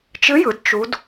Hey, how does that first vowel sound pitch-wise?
rising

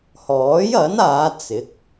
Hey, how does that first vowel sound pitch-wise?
rising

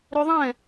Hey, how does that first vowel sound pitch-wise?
high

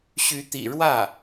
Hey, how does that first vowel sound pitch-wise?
rising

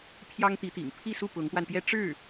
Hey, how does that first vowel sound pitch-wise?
high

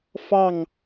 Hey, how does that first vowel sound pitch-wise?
falling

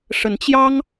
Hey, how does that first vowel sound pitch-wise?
rising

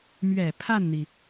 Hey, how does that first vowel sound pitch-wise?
low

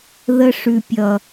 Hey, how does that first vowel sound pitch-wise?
high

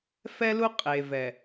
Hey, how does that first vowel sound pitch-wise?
high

